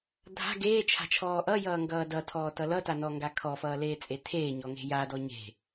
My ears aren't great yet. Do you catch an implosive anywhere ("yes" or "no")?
no